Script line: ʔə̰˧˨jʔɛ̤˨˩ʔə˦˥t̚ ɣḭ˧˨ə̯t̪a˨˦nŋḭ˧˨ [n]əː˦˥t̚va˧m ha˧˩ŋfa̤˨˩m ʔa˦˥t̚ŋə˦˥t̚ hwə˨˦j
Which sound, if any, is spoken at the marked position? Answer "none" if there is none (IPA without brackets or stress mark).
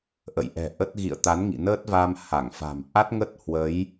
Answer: n